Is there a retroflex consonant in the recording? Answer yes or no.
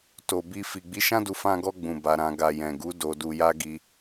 no